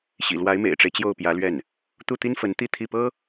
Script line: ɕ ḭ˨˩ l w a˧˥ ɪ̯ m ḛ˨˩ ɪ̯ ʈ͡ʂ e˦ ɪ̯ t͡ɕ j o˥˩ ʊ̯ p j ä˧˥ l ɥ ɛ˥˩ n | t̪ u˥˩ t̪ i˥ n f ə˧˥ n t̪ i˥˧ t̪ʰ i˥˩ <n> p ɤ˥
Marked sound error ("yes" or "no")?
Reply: yes